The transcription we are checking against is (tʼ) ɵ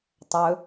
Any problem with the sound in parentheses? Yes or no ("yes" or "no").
yes